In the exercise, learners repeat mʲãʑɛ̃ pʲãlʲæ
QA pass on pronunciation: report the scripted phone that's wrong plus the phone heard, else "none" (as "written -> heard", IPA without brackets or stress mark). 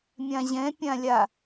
æ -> a